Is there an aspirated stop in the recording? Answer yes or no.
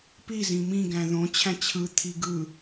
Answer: yes